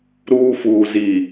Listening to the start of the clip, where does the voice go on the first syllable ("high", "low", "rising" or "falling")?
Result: high